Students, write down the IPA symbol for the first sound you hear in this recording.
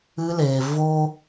ɨ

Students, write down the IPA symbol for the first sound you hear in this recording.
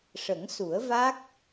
ʂ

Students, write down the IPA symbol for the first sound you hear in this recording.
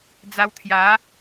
d͡z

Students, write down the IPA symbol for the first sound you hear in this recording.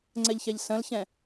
ŋ͡ǀ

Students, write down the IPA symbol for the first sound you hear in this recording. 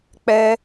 k͡p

